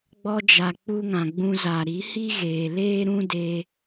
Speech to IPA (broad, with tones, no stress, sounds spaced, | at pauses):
ɡ͡b ɔ˦ d͡ʒ a˨ k͡p u˦ ŋ ã˨ ɡ͡b ũ˧ z a˨ ɾ i˨˦ h i˦ ɣ eː˨ l eː˦ ɾ ũ˦ d e˧